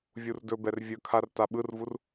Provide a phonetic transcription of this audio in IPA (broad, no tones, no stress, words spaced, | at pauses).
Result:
vʲurdɵbɛr vʲɵkʰar taɓɯrvur